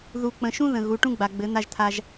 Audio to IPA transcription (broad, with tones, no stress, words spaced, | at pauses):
ðu˨ k͡pə̃˨ʃũ˦ ðə̃˨ ɣu˨˦ ʈũ˦ɡ͡ba˨ɡ͡bɘ˨˦ n̪a˦ʒt̪ʰa˦ʒ